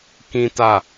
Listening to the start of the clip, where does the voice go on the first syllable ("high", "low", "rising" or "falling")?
high